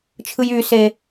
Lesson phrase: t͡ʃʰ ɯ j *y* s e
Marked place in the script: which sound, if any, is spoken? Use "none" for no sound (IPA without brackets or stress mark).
y